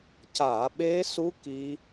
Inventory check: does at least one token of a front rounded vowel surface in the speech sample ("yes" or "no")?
no